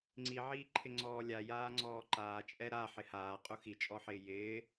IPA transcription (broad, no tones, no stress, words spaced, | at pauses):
ŋ͡ǀiʕiːǃʰɪ ŋ͡ǀɔːlʲa jaːŋ͡ǀɔːǃaː t͡ʃʼɛɾa ħɪhaː qʼuxit͡ʃʼɔħɪː jɪː